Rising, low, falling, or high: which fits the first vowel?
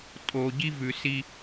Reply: low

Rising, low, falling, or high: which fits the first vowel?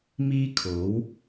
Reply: high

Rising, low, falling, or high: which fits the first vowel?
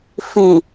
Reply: low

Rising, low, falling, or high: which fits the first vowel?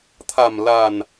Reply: low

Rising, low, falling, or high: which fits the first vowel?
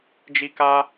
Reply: high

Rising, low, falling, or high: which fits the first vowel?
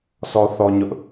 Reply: high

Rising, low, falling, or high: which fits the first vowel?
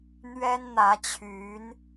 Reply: high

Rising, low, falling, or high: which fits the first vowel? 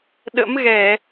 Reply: rising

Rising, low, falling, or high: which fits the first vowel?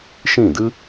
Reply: falling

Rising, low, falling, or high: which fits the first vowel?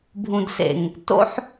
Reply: low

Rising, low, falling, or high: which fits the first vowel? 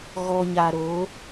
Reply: low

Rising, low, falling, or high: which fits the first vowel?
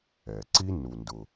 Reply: low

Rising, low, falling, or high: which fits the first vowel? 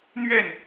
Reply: falling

